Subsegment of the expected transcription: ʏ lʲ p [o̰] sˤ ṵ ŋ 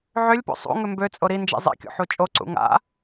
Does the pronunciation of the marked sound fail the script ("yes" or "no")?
no